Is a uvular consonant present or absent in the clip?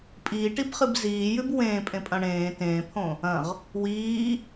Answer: present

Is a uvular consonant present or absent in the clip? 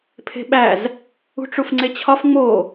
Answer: absent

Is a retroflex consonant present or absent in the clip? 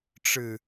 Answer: present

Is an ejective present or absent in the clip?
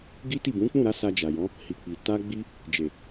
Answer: absent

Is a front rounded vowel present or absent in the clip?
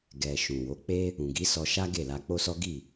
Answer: absent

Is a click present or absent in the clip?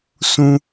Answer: absent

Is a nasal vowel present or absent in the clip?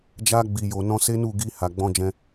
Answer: present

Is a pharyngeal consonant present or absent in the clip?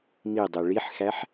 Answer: present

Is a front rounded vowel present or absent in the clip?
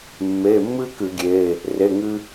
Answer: absent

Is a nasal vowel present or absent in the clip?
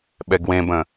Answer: present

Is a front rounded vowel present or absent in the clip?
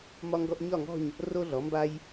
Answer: absent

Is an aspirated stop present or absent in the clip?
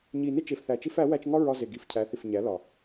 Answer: present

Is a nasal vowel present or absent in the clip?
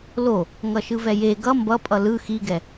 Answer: absent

